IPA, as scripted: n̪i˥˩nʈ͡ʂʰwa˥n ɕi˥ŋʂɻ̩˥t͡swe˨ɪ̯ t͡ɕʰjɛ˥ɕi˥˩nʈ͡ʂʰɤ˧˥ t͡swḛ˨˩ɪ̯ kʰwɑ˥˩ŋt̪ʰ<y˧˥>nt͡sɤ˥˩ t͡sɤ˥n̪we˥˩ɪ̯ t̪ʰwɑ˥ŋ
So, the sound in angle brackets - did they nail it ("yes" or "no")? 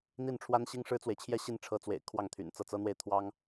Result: no